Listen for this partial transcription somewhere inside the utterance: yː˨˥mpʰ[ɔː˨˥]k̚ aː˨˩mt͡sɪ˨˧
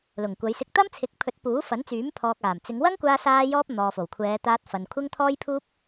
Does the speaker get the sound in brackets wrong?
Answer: yes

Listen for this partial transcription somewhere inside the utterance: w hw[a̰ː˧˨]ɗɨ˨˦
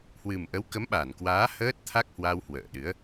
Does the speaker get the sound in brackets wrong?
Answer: yes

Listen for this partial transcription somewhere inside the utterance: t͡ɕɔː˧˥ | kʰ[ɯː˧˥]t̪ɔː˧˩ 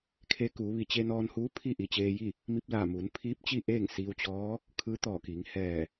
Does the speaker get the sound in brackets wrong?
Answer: no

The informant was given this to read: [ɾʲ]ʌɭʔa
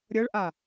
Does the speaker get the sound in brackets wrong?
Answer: no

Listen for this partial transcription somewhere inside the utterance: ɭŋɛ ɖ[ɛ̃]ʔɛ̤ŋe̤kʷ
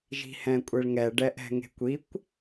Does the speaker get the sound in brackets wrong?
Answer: yes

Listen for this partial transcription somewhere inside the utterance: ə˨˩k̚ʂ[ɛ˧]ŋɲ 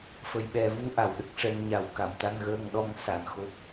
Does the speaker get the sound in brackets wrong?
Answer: no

